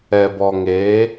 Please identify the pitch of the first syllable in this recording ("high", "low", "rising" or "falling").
low